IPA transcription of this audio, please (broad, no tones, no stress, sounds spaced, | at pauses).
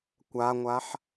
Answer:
kʷ a ŋʷ a ħ